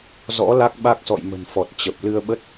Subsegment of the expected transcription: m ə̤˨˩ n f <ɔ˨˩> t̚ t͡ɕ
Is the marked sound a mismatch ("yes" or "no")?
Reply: no